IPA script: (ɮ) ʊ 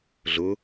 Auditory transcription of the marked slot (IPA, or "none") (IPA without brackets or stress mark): ɮ